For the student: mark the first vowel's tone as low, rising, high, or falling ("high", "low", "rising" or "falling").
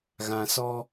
low